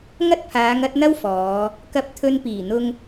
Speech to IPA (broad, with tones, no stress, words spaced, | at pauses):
ŋɐ˥t̚pʰaː˨˧ŋɐ˨˥t̚n̪ɐ˥w fɔː˨˧ | kɐ˧p̚t̪ʰɵ˧npiː˨˩n̪ʊ˧ŋ